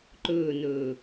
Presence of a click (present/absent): present